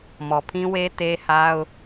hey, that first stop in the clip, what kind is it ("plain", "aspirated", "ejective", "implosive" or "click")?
aspirated